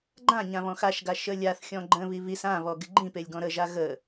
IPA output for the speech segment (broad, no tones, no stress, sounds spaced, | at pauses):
ɡ͡ǃ ã ɲ ã β ɔ̃ x a ʃ ɡ a ʃ ə lʲ a θ xʲ ɔ̃ ɡ͡ǃ ə̃ β i β i s ã β ɔ ɡ ɪ ɡ͡ǃ ĩ p e lʲ ɡ ɔ̃ ɾ ə ʒ a ɣ ə